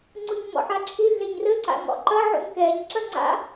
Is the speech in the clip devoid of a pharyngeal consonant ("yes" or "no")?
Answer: no